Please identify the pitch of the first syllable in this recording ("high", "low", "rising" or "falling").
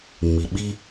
low